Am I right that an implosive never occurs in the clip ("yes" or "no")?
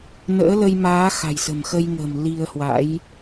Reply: yes